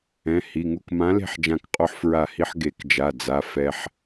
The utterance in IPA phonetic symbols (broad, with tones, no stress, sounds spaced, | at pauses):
ɛ̃˩˧˩ h i˩˧˩ ŋ u˥˩ k m ã˨˥ l e̤˥˩ ħ d͡ʒ ã˧˩ k qʼ o˧ ħ f ɹ a˧˩ h i˧ ħ ɡ e˨˩˦ k d͡ʒ a˩˧˩ d͡z a˩˧˩ f ɛ˧ ħ